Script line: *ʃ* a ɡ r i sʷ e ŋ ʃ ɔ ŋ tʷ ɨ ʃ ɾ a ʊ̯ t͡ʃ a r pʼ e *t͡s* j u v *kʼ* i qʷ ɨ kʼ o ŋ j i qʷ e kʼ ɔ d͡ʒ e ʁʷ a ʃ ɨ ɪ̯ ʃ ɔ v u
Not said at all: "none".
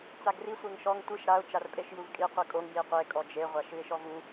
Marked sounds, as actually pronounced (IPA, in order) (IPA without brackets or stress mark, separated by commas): t͡s, ʃ, kʼ